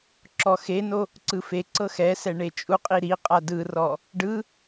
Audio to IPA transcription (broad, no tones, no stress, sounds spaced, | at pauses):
ǁ ɔ x e n o | ǀ ɯ f e ǀ ɤ x ɛ s ɛ ɳ e t͡ʃʼ u qʼ i ɾ i qʼ a d ɯ r ɔ | ɖ ɯ